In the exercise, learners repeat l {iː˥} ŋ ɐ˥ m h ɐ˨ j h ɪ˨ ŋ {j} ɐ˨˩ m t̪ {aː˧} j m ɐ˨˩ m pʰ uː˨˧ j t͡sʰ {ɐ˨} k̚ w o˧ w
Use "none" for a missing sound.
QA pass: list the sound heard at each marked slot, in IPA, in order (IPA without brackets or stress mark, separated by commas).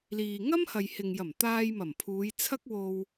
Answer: iː˨, j, aː˧, ɐ˥